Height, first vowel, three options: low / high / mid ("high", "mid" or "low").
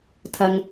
low